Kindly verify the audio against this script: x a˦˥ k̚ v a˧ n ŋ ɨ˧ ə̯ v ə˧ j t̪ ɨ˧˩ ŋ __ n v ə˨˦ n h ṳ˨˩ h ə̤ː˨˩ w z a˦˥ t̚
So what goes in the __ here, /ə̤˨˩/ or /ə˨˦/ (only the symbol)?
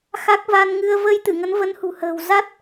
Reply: ə˨˦